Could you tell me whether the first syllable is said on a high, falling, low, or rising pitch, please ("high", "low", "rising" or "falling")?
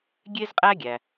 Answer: high